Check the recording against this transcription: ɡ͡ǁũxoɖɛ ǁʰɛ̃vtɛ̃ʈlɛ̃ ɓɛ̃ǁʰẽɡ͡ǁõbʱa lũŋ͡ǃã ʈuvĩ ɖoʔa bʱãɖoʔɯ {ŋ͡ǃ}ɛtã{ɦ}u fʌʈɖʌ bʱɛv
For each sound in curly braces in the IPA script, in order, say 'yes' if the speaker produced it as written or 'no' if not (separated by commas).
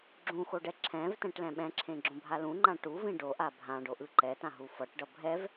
no, yes